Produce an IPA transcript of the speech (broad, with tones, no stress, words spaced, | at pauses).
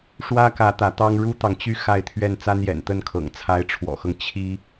ʂwä˥kä˧˥ t̪ä˧˥t̪ɑ˥ŋ ɻu˥t̪ɑ˨ŋt͡ɕy˥˧ xa˥˧ɪ̯t̪ʰɥɛ˥˩n t͡sa˥njɛ̰˨˩nt̪ə˥˩nkʰɤ̰˨˩ŋ t͡sʰa˧˥ɪ̯ʈ͡ʂʰwɔ̰˨˩xɤ˦ŋ t͡ɕʰi˥